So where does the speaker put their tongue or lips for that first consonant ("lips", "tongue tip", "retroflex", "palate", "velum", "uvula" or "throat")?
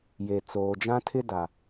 palate